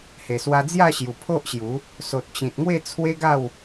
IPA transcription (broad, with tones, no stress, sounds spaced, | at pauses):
h e˨˩ s w a˧ d͡z j a˥˧ ɕ j u˨˩ pʰ o˦ ʔ ɕ j u˨˦ | s o˨ t̚ t͡ɕ ĩ˨ t̚ ŋ w e˥˧ t͡sʰ w e˦ ɡ a˥˧ w